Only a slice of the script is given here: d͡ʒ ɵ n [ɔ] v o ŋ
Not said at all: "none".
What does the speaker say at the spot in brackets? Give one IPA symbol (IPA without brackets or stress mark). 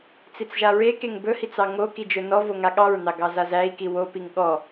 ɔ